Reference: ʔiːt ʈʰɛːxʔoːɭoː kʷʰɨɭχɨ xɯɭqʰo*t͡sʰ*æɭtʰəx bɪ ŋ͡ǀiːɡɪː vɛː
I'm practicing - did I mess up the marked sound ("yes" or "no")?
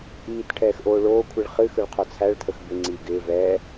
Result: no